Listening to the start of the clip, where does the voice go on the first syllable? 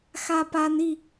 high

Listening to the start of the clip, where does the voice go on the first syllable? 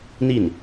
falling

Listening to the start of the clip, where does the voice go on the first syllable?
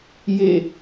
falling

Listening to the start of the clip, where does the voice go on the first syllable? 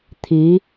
rising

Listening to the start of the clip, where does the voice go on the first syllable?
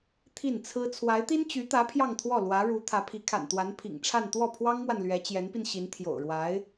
falling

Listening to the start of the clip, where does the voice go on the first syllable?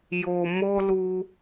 low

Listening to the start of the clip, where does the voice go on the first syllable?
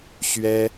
high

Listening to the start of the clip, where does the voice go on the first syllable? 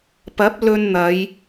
rising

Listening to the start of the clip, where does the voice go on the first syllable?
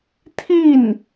falling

